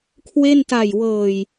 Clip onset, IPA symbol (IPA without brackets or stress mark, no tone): kʰ